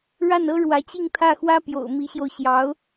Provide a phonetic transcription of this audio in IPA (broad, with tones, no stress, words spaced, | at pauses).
ɻa˥˩nɤ˥ɻwä˧˥t͡ɕi˥˧ŋ t̪ʰä˥˩xwä˥pjo̰˨˩ʊ̯ mi˧˥ɕjo˧ʊ̯ ɕjɑ˧˥ʊ̯